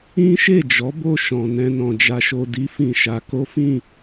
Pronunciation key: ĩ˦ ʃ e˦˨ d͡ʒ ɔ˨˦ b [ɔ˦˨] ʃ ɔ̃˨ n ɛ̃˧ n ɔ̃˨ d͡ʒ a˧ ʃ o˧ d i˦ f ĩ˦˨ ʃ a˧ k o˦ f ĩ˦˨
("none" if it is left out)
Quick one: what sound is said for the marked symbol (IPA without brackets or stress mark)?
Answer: o˦˨